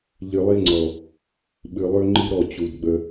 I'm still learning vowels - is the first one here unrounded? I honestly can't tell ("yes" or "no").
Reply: yes